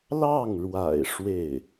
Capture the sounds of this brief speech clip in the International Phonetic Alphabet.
lɑ˥˩ŋɻwa̰˨˩ɪ̯ ʂwe˥˩ɪ̯

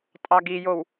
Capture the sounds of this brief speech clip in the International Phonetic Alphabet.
tʼɑɡijow

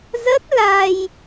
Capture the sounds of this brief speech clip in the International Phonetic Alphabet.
zə˦˥t̚la˧j

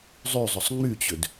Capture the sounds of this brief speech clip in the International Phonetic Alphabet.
zˤyzˤʏsˤ ŋ͡myt͡ɕʏd

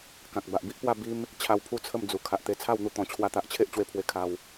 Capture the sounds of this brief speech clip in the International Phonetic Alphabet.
kã˨k̚ba˨ʔbi˦ʔpwa˥˧ bi˦m | t͡ɕʰa˧wpʰu˥˧ t͡sʰə˥˧md͡zu˨˩ kʰa˨ʔt̪e˧t͡sʰa˥˧wn̪u˧ t̪ɔ̃˨˩t͡ɕʰwa˧t̪a˨ʔt͡ɕʰe˦ʔ t͡ɕwe˧pʰwe˧ kʰa˧w

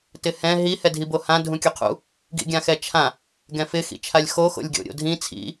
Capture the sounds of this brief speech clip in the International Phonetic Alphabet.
tɪhɛ̃ ɦi hɛdʱibohã dʱũkʲuqʰṵ | ɡḭɡʲãxɛt͡ʃʰã | ɡɛ̃fɪ xḭt͡ʃʰalʲxo xo̰lʲɡʲo̰ɾʲo̰dʱĩ t͡sʰḭ

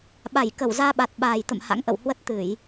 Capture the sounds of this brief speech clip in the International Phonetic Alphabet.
ɓa˧˩jkə˧˩wzaː˧ɓa˨˩t̚ ɓa˨˩jt̪ə̰˧˨m ha̰˧˥ŋʔə̰˧˨whwə˦˥t̚ t̪ɨ˧˩˨j

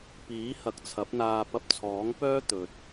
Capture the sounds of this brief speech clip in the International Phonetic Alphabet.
piː˨˥hɐ˨˥k̚t͡sʰɐ˨˥p̚n̪aː˧ pɐ˧p̚t͡sʰɔː˨˥ŋpœː˥ t̪ɵ˨t̚

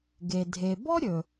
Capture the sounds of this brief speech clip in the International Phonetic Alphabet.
ɡe˩ dʱe˩bɔ˥ ɾʲɵ˩

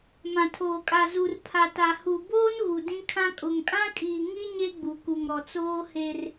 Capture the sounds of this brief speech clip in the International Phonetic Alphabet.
mã˨tʰoː˨kʼa˨ zu˨rpʰa˨ta˨hu˨ boː˦nɣu˨ dĩ˦kʰã˦ kʼʊ˨ŋ kʼã˦kʼiː˨ŋi˦ ɲe˦ɡ͡bu˨ku˨ŋɾɔ˨ t͡soː˦he˦r

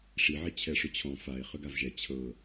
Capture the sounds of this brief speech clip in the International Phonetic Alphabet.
ʂiʕi t͡ɕʰɛʂʏt͡ɕʰɔ̃ fae̯ χʏɡavʒɛ t͡ɕʰɤ

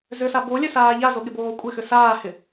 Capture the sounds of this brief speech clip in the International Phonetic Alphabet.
zʏsa bolʲœsaː ʎazoɠɪboː kʷʼɪxʏ saːhɪ

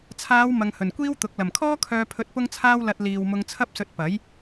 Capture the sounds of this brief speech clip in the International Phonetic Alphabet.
t͡sʰaː˨˧w mɐ˨ŋhɵ˨˩nkʷiː˥wt̪ʊ˨˥k̚ lɐ˨˩mkʰɔː˥ kʰœː˧pʰɵ˧t̚ pʊ˥ŋt͡sʰaː˥w lɐ˨t̚ liː˨wmʊ˧ŋt͡sʰɐ˥p̚sɵ˧t̚ pɐ˨˥j

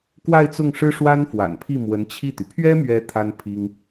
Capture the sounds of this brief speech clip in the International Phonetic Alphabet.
kwa˥˧ɪ̯t͡sʊ˥˩ŋʂɻ̩˥ ʂwa˥nfwa̰˨˩npʰi˥˩ mwə˧˥nt͡ɕʰi˥˩t̪y˩ pʰɥɛ˥mɥɛ˧˥ t̪ʰa˥npʰi˥ŋ

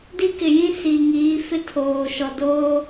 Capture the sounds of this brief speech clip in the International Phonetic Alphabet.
di˦kɪ˨jĩ˦ si˨ŋiː˨˦fɪ˦ tʰoː˨ʃɔ˨ doː˦

